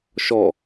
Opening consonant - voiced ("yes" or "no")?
no